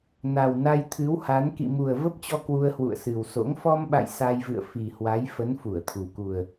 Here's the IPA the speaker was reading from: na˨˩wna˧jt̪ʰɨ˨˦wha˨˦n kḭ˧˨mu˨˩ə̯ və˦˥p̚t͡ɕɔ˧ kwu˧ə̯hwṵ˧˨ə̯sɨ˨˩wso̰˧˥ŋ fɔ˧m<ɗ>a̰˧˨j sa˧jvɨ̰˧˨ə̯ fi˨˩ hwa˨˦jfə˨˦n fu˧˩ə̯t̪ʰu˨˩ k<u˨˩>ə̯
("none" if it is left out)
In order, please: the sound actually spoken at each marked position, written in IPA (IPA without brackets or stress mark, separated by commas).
ɓ, u˨˩